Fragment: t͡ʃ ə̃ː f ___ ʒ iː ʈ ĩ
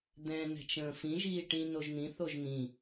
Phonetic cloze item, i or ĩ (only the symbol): ĩ